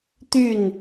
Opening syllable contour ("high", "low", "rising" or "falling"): falling